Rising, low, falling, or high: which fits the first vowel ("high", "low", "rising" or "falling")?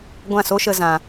falling